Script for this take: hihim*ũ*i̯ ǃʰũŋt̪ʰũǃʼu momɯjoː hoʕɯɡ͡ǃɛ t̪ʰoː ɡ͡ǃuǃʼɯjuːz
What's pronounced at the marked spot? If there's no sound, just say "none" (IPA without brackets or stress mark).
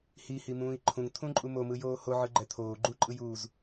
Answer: ũː